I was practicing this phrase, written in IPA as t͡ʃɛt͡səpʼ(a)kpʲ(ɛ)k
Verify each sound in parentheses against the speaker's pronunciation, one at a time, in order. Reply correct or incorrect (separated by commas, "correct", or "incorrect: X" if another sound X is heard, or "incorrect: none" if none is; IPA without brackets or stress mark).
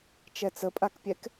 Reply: correct, correct